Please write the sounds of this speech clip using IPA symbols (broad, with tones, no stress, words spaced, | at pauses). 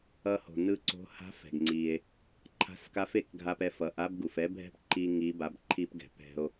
ʌ˧ho̤˩nɯ˧ǀo̤˧˥ ha̤˧˥fɛ̤˩ɡŋ͡ǀi˩e̯ | ǃʰa̤˧˥ska˧˥fe˩˧kɡʱa˧p ɛ˧fʌ˩˧ʔa˥b ɡu˩fɛ˧˥bʱɛ̤˥p ǃi˧ ŋi˧˥ba˧˥bǃʰi˥pɡɛ̤˩˧ pɛ̤˧o̯